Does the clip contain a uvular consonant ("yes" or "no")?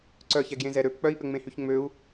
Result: no